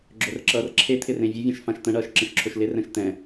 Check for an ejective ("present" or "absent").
absent